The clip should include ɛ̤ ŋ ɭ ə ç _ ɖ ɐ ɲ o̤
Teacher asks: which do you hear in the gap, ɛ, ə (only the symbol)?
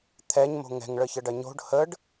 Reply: ə